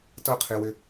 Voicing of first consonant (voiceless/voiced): voiceless